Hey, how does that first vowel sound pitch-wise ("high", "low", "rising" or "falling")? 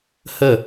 falling